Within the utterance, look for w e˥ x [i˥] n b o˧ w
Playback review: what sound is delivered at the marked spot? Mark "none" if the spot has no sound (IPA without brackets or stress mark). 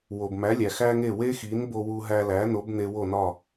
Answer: i˩˥